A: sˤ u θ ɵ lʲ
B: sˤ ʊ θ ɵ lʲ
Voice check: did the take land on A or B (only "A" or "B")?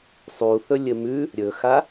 A